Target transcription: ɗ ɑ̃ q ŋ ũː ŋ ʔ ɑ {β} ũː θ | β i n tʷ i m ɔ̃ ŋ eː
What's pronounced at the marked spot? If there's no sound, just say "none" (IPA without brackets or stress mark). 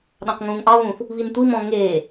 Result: β